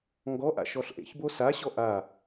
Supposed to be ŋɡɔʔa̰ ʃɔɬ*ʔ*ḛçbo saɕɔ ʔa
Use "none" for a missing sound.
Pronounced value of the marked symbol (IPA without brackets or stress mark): ʔ